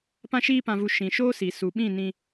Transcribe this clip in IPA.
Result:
pã˧ʃiː˧pã˨vu˨ ʃĩ˨ʃoː˦si˨ su˨ɓĩ˦˨ nĩ˧

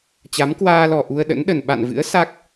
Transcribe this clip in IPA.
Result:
t͡ɕa˨˦mkwaː˧lɔ˨˩ ʔu˧ə̯ɗə̰˧˥nɗə˨˩n ɓa̰˧˨nvɨ̰˧˥ə̯ sa˦˥k̚

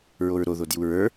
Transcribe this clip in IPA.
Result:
ɹoɹɾoðo djuɹə˞

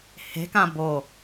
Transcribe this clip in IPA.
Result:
he̤kã bo

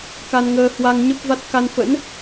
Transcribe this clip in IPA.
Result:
ka˧nŋəː˧ hwa˧ŋɲə˦˥p̚va˦˥t̚ ka˧nfə̰˧˥n

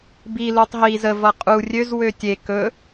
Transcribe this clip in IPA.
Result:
bi lutˤɦiz ə vʌqʼu rʲøz wøtʲe kɵ

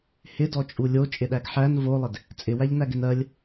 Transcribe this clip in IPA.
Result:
hɪdɔt͡ʃʼu lʲot͡ʃʼɪɗæɡ ħæn volˠɪd | t͡sʼɪwæʎnæɡɪn ɜlʲ

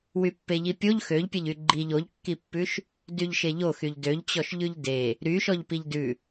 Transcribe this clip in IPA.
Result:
wypːeʎipʲoʎ xøʎpʲɛʎy ɡ͡ǃiʎ oʎkːipːʉʃ | dyʎʃeʎoxyʎ døʎt͡ɕɔʃ ʎʉʎde | ɾyʃɔʎ piʎdʉ

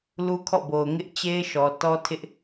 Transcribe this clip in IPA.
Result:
lu˦kʰɔ̰˦˨bo˨ʊ̯ ŋɪ˦ʔ t͡ɕe˦ɪ̯ʃɔ˨ tɔ˦tʰɪ˦ʔ

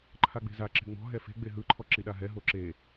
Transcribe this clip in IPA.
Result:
ǃʰaɡ͡be̤za ǁe̤ŋ͡mɔ̤ ɦɛfe̤ ɡ͡beɦɯ ǃʰɔǁiɗaɦɛ ɦoǁe

